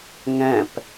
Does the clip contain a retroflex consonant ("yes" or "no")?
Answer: no